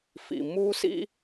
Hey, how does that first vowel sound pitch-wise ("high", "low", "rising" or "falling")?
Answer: low